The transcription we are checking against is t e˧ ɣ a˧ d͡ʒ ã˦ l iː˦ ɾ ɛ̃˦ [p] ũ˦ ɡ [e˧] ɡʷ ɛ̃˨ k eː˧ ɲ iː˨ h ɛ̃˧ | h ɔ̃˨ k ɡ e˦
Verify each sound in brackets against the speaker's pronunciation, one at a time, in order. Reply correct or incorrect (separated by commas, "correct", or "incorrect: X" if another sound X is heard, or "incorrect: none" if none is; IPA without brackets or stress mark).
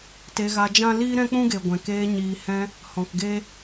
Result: incorrect: k͡p, incorrect: e˨